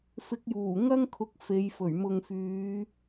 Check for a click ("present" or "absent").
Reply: absent